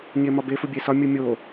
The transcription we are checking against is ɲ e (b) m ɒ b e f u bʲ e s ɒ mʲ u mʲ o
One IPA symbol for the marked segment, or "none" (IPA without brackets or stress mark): none